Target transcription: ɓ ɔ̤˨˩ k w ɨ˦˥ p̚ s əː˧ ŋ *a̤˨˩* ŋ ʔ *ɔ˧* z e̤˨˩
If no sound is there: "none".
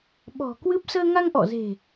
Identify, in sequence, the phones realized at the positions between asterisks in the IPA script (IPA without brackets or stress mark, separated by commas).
a˧, ɔ̰˧˨